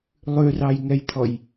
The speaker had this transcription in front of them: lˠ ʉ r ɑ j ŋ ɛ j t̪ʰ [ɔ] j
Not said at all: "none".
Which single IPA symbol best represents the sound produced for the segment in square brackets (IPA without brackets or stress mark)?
ɔ